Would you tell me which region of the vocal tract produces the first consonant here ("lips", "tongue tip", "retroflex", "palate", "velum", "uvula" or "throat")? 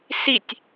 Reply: tongue tip